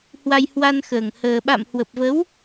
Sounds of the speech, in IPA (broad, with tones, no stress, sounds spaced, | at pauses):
h w a˧ j h w a˧ n x əː˨˩ ŋ h əː˧ ɓ a̰˧˨ m h w ə˨˩ p̚ v ə˨˦ w